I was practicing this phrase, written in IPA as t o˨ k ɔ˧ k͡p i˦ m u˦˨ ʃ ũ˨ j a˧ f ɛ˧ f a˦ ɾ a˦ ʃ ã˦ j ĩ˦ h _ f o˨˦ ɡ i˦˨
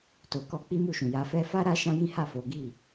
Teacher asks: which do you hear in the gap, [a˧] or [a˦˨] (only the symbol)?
a˦˨